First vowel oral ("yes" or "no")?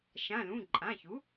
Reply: no